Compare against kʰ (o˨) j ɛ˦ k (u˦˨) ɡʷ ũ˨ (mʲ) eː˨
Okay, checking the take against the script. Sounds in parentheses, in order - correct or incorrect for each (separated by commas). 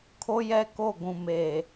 incorrect, incorrect, incorrect